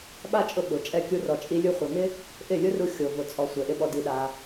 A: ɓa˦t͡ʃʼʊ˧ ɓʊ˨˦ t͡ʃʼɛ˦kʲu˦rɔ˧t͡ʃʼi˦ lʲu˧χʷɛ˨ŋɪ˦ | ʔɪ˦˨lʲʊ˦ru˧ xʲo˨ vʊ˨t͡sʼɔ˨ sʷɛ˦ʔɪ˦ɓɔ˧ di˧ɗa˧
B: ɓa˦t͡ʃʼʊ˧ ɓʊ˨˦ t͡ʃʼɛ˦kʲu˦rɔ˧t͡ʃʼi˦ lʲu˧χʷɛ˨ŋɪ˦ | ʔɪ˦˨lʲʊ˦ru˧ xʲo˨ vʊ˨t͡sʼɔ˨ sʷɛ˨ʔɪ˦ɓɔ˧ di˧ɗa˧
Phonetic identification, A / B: B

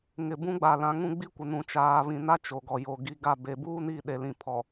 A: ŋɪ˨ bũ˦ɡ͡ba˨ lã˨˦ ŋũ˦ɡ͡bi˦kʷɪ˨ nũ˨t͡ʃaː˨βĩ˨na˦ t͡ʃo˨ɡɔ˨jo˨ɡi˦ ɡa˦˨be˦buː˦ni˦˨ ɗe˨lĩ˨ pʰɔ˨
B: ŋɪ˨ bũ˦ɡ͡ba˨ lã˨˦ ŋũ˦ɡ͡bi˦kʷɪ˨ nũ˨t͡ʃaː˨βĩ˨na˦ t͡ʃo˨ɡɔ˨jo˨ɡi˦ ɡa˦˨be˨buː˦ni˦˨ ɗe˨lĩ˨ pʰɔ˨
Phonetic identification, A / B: B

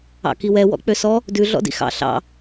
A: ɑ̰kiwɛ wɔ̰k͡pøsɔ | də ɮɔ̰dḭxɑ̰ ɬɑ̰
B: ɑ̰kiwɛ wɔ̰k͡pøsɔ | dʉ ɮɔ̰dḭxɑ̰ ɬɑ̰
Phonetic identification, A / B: B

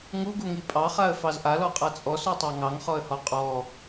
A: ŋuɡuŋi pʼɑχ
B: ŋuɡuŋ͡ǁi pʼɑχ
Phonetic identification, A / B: A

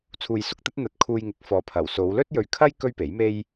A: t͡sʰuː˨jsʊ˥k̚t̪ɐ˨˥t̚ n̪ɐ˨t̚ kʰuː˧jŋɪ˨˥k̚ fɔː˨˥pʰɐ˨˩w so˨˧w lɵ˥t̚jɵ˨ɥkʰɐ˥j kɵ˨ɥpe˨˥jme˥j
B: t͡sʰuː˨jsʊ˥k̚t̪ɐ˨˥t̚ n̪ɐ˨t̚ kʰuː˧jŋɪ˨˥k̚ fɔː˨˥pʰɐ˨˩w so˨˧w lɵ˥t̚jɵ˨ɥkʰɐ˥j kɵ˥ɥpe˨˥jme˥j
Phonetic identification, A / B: B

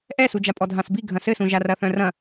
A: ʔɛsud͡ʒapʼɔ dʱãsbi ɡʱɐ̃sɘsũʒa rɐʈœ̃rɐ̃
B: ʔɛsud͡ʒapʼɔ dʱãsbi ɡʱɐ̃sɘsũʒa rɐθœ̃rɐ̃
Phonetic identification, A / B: B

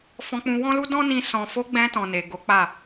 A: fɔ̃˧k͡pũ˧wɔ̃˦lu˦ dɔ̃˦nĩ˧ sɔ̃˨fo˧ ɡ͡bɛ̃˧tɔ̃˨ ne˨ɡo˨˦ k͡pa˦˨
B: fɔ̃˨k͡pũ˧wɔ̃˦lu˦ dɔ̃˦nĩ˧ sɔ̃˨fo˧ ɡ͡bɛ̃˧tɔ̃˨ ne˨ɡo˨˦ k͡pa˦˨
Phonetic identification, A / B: A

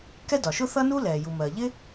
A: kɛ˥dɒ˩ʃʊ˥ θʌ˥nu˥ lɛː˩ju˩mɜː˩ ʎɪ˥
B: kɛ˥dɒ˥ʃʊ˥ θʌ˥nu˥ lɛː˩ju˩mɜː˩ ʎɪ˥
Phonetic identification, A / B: A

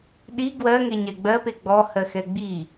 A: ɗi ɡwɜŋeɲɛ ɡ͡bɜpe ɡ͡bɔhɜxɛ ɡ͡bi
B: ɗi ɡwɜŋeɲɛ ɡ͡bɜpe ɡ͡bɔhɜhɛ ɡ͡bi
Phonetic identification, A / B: A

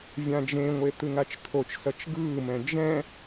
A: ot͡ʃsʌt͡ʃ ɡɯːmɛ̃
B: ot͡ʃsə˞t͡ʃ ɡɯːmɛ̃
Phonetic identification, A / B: A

